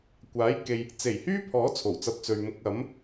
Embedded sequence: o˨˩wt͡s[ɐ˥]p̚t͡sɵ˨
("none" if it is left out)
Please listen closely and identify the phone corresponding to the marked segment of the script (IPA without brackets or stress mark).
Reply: ɐ˧